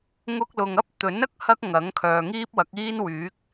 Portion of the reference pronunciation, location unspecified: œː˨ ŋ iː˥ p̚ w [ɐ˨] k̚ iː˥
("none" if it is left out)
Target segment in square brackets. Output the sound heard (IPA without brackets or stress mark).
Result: ɐ˨˥